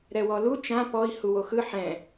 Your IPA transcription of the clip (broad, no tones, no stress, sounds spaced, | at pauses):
ɾ ɛ w ɔ l u t͡ʃ ã p ɔ i̯ h u w o x ɯ ħ ɛ̃